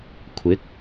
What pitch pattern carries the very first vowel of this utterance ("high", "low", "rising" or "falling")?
rising